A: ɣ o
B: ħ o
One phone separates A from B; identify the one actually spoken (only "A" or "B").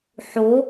B